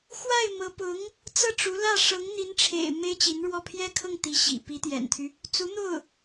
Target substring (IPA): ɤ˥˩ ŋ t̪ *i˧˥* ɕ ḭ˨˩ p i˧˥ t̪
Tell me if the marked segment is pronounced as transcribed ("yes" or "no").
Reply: yes